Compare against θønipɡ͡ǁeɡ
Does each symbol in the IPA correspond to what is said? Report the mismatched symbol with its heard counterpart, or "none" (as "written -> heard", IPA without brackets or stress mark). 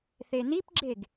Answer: ø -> e